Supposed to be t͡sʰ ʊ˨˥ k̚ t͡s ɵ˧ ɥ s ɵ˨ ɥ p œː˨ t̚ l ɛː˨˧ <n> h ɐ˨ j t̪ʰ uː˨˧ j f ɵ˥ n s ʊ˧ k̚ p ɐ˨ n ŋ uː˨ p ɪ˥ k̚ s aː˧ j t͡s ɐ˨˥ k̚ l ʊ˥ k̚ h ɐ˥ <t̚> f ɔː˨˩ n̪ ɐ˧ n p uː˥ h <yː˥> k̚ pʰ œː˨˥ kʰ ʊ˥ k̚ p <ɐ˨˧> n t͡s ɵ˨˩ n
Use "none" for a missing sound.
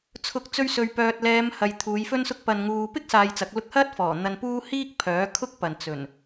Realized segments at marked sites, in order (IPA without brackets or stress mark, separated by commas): m, t̚, iː˥, ɐ˨